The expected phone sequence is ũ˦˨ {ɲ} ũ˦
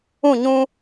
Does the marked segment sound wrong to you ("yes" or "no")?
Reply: no